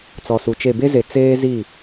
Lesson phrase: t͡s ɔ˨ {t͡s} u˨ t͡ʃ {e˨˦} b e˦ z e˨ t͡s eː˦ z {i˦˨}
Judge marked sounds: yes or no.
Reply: no, no, yes

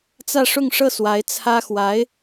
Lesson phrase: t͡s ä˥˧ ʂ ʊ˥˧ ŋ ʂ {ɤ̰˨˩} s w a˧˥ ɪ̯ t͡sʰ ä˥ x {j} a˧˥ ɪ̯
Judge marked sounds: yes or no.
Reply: no, no

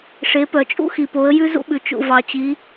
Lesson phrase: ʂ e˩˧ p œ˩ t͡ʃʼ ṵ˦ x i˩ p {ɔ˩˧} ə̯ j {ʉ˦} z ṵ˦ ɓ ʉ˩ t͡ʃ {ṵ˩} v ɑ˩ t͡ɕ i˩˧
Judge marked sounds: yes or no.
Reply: no, yes, yes

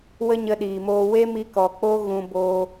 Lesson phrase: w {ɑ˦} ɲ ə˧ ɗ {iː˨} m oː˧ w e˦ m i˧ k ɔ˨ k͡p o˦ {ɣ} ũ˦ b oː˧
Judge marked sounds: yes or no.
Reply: no, yes, yes

